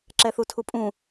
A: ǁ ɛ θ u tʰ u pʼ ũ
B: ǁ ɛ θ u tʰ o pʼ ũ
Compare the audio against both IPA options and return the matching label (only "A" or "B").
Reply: A